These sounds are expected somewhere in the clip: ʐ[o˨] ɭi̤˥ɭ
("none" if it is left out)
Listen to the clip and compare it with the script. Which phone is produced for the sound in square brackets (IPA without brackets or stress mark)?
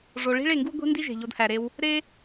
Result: o˨